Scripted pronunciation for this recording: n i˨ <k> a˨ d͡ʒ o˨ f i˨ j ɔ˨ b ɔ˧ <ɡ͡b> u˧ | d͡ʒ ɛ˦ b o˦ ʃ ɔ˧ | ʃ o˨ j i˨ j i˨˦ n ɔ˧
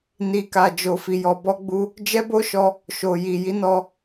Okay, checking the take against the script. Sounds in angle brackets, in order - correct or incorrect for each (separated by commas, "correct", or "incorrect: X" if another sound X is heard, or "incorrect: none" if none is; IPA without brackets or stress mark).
correct, correct